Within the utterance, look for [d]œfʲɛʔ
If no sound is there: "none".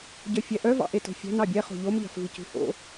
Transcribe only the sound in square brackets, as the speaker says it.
ɟ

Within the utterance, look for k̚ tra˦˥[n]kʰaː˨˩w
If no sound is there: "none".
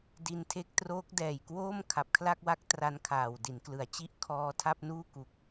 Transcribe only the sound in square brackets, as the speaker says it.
n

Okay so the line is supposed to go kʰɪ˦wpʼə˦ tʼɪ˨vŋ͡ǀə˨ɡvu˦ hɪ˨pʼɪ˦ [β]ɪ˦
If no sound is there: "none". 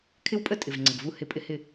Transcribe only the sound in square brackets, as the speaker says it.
h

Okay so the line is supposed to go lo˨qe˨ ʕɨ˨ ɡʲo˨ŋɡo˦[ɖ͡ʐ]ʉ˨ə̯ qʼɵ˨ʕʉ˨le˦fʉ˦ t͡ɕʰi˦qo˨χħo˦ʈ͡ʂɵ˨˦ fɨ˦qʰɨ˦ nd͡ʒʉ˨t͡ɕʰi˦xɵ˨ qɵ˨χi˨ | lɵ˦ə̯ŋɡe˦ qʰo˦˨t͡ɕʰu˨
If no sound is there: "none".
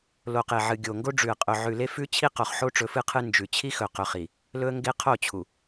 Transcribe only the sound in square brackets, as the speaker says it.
ɖ͡ʐ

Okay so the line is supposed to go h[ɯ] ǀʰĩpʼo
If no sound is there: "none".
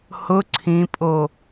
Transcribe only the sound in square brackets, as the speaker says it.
ʊ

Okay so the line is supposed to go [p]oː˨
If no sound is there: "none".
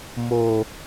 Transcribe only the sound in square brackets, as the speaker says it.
m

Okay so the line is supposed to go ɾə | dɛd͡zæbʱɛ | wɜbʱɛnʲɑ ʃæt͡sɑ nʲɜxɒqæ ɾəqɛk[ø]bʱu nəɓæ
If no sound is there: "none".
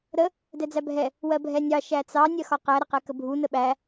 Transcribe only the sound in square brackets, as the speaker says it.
ə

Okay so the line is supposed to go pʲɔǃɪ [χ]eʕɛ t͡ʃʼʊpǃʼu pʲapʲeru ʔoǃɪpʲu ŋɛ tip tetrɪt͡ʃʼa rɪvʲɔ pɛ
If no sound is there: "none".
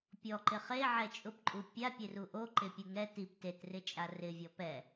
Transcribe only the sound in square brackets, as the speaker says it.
χ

